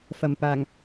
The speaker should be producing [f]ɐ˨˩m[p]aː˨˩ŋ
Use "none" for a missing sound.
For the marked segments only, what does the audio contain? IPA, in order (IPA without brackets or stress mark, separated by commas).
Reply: f, p